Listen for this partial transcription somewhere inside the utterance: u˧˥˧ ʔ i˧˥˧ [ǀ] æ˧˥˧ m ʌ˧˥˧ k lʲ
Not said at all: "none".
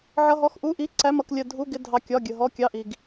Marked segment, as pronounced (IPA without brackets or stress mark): ǀ